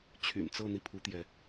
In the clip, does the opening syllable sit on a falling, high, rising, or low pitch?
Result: low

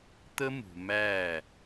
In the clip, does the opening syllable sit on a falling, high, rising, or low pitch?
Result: high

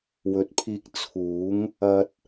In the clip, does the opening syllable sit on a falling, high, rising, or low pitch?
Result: rising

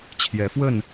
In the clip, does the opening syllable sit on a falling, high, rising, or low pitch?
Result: rising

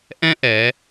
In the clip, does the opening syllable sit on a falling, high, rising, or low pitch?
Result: high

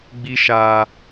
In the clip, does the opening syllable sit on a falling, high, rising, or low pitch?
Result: high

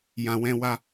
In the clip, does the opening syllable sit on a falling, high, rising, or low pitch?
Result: low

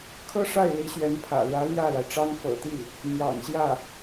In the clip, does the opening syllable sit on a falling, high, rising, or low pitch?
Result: high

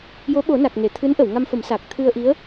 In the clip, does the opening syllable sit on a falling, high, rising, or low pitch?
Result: rising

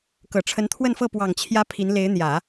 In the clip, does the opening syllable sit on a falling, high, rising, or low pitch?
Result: low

